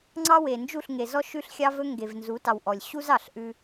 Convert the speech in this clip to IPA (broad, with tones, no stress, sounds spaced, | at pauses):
ŋ͡ǀ ɑ˦ w e˨ n d͡ʒ u˦˨ ɬ ŋ e˨ z ɔ˦ ʃ ʉ˦ ɬ xʲ ɑ˦ v ɵ˦ ŋ ɡ e˨ v n z u˨˦ t ɑ˨ w ʔ ɔ˨ lʲ ɕ u˦ z ɑ˨ ɬ ʔ ʉ˦